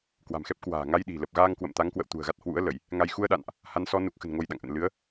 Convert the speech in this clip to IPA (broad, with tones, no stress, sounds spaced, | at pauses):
k w a̤˨˩ m x ɛ˦˥ p̚ k w a̤ː˨˩ ŋ a˧ j ɗ i̤˨˩ l ə˨˩ p̚ ɣ aː˧ ŋ k w ə̰˧˨ m t̪ a˨˦ ŋ k w ə̰˧˨ w t̪ ṳ˨˩ ə̯ ɣ a˦˥ t̚ h w ṵ˧˥ ə̯ l ə˧˩˨ j | ŋ a˧ j x u˧ ə̯ ɗ a̰˧˨ n ʔ | h a˨˦ n s ɔ˨˦ n u˨˩ k̚ x ə̤˨˩ n ŋ o˧ j ɗ a̰˧˨ ŋ ʔ ə̰˧˨ n l ɨ˨˦ ə̯